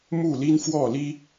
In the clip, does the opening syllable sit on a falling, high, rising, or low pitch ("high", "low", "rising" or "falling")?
falling